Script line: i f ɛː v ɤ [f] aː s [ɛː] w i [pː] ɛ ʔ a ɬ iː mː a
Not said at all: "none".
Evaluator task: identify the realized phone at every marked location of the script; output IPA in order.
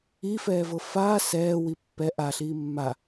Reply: f, ɛː, pː

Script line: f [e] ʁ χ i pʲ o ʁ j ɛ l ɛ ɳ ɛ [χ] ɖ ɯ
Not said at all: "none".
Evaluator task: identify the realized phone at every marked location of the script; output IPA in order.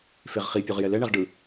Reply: e, ʁ

